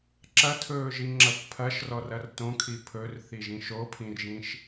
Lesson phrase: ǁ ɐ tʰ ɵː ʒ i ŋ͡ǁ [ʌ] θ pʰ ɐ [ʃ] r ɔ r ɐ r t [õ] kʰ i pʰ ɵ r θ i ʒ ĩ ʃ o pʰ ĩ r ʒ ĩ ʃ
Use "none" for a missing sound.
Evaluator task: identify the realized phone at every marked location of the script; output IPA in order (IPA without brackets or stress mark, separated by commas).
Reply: ʌ, ʃ, õ